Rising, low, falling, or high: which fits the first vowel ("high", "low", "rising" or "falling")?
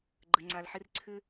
low